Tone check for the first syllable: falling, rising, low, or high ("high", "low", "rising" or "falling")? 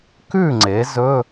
falling